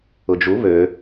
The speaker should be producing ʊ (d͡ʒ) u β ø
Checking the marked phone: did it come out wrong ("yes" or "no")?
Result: no